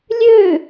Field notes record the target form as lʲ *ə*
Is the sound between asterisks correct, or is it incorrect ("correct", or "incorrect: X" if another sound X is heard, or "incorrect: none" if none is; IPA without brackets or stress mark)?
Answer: incorrect: ø